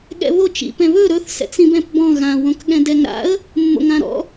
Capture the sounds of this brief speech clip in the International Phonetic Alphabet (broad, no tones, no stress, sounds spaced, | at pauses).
ɠ ɛ̰ β o t͡ʃ ḭ p ɛ̃ β ɵ ɾ ɵ θ s ɛ̰ t͡s ĩ b ɛ̃ p b ɔ̃ ɣ ã w õ k ɠ ɛ̃ d ɛ ŋ ɾ a̰ ə̯ | mː o̰ ŋ ã ɾ ɔ̰